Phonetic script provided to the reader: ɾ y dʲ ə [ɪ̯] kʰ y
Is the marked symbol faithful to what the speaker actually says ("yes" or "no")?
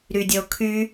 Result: no